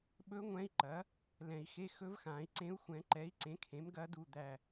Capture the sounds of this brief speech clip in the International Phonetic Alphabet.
ɓ ɵ˧˥ ŋʷ ɛ̃˧˥ i̯ ǃ ɐ˩˥ | l ɛ̃˨˩˦ i̯ x e˧˥˧ x ɵ˧˥ v x ã˨˩˦ i̯ ǀ ẽ˧˥ u̯ xʷ ɛ̃˨˩˦ ǃ ɛ˩˥ i̯ ǀ ẽ˩˥ kʰ ẽ˩˥ m ɡ ɐ˧˥ d u˦˨ d̪ æ˦˨

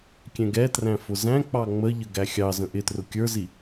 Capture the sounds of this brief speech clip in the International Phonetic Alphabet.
kʲ ɛ̃ ɡ ɛ t r æ̃ f ʊ z æ̃ k͡p ɑ ŋ͡m ə ʎ ə ɡ æ xʲ ɑ z ə̃ ʔ ɪ t r ʊ kʲ ə˞ z i

